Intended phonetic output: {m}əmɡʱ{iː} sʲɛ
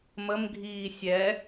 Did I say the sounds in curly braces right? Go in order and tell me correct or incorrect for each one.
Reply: correct, correct

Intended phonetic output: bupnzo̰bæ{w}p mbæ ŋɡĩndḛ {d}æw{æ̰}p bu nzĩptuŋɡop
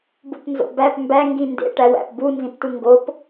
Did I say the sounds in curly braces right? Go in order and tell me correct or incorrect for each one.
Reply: incorrect, incorrect, correct

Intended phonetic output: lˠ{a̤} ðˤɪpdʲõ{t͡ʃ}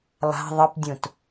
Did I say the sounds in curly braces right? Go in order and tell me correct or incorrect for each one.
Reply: correct, incorrect

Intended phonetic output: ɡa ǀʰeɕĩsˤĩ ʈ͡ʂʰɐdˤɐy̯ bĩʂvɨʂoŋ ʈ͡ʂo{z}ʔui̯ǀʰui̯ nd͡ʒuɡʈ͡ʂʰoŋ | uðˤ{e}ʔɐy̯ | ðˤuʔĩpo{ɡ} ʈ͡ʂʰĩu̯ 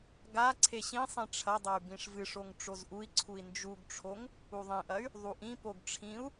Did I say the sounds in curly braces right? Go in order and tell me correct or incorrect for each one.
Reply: correct, incorrect, correct

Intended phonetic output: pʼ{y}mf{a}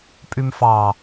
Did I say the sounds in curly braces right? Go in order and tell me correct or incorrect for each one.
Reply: correct, incorrect

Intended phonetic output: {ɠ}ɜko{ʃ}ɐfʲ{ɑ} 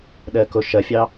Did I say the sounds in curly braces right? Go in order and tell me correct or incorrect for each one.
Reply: incorrect, correct, correct

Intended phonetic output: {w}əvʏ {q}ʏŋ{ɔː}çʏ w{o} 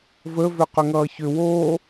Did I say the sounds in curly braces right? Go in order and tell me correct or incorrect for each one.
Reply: incorrect, correct, incorrect, incorrect

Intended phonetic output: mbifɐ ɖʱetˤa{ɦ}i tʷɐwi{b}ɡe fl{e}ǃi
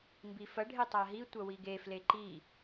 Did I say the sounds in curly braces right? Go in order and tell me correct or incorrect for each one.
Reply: correct, incorrect, correct

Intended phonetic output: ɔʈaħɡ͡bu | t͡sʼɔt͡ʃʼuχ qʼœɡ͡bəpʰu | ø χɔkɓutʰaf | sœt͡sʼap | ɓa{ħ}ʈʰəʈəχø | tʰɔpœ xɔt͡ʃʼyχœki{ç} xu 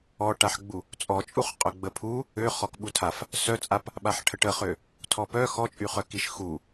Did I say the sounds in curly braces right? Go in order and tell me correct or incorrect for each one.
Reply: correct, incorrect

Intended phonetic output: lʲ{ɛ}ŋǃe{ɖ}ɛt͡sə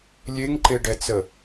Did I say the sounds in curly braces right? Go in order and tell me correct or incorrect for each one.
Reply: incorrect, correct

